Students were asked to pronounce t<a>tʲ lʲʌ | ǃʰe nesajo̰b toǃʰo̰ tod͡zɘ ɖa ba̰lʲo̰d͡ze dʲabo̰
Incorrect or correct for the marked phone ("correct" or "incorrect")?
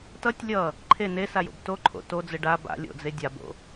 incorrect